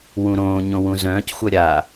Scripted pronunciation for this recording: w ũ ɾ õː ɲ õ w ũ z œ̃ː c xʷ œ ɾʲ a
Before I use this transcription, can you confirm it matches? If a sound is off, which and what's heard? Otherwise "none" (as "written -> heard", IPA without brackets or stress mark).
none